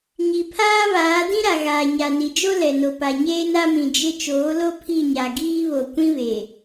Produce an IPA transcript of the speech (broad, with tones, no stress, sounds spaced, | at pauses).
ɲ i˨ pʰ aː˦ β aː˨˦ d ĩ˦ ɾ a˨ ɣ aː˨ ɲ a˨ n i˨ d͡ʒ o˦ l ɛ˨ n o˨ p a˨ ɲ eː˦ n a˦ m ĩ˨ d͡ʒ ɪ˦ t͡ʃ oː˨˦ l o˦ pʰ i˦˨ ɲ a˨ ɡ iː˦ β o˨ kʷ ĩ˦ β e˨